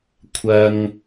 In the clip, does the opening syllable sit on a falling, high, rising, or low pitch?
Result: high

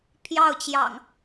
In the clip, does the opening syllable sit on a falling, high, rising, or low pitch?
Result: falling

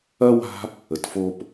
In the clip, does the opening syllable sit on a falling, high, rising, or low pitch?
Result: high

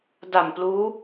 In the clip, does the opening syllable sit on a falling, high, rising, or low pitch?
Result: low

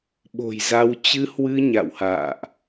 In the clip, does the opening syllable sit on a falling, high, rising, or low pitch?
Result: low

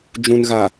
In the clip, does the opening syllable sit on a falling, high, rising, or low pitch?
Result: low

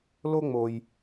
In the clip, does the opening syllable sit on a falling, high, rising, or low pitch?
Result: high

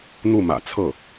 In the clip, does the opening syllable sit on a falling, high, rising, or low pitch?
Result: falling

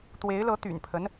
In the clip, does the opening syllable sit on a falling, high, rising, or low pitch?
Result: rising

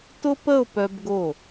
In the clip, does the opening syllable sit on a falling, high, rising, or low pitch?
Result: high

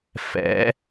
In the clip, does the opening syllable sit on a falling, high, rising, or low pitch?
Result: rising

